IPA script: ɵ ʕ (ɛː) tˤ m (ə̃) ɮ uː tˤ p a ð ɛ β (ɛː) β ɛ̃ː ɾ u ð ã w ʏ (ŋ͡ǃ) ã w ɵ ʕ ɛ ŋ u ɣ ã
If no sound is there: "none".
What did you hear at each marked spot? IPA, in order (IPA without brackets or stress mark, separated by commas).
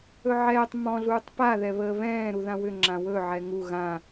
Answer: ɛː, ɔ̃, əː, ŋ͡ǁ